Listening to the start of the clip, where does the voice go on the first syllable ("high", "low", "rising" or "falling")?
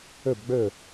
falling